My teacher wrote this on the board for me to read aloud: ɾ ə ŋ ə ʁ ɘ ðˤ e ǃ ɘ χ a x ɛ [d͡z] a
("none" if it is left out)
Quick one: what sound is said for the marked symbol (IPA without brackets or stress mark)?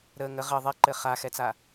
t͡s